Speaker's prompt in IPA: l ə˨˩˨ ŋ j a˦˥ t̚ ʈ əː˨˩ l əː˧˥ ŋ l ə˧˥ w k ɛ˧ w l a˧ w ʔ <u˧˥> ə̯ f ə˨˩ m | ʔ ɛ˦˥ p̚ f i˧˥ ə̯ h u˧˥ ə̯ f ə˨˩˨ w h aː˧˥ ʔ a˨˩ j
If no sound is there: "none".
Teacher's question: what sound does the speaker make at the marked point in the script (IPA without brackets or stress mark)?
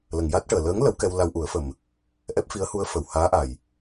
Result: u˨˩˦